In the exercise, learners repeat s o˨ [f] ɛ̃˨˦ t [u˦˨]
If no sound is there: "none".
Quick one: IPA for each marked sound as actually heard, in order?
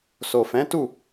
f, u˦˨

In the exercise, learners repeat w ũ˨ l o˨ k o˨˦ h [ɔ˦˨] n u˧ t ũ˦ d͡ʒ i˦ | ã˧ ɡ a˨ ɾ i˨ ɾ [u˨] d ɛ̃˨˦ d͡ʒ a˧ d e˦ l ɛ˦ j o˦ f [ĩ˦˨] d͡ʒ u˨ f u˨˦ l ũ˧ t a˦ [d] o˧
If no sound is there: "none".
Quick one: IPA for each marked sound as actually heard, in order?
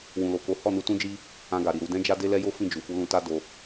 ɔ˦˨, u˨, ĩ˦˨, d

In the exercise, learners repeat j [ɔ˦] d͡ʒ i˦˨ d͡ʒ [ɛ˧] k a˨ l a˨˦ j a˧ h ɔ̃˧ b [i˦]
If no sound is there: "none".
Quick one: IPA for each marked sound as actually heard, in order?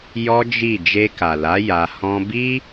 ɔ˦, e˧, i˦

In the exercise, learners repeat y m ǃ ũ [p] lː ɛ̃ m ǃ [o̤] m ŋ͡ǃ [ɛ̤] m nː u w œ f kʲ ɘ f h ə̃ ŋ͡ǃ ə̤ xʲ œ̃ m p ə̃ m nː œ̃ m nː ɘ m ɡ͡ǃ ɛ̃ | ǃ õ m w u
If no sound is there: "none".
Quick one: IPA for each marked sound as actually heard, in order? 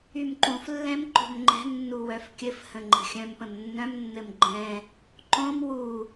f, o̤, ɛ̤

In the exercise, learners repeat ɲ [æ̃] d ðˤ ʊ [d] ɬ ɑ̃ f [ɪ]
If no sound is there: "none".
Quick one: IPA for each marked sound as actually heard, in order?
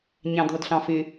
æ̃, d, ɪ

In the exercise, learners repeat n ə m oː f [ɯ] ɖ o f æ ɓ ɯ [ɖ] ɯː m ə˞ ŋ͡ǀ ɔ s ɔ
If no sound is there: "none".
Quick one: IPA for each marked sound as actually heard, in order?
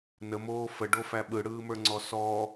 ə, ɽ

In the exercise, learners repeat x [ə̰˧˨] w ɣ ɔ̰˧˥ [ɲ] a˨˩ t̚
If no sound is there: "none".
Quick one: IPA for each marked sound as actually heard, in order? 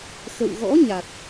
ə̰˧˨, ɲ

